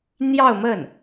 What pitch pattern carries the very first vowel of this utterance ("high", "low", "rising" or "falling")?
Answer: falling